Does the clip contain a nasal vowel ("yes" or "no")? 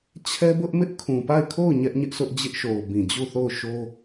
yes